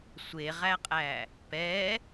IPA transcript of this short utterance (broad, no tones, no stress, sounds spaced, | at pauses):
sʷ e ʁ æ qʼ æ | p ɛ